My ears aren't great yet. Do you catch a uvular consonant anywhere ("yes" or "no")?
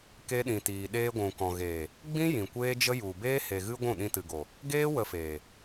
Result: no